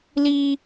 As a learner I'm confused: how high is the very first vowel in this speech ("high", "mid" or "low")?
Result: high